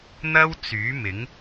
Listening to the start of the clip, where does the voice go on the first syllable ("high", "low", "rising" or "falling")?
high